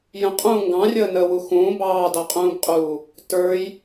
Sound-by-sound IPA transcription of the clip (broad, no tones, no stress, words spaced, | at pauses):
jə̃qʼũː ŋɡɑ̃rʲəːnəːwu xũː bɑːdɑqʼũːbqʼuː | tə˞j